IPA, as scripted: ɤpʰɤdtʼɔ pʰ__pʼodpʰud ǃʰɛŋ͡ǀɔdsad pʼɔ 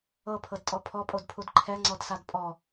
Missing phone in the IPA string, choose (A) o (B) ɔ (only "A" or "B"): B